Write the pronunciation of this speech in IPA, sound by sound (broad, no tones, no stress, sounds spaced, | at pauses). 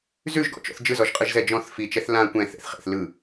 z ʉ ʒ ɡ ɔ̰ t͡ʃ ɔ̰ θ d͡ʒ ɯ z ɔ ʒ qʼ ɯ ʒ z ɛ d͡ʒ ɔ̃ θ f i t͡ʃ ɛ θ l ã kʷ ɛ̃ θ ɛ̰ θ χ ḛ θ l ɯ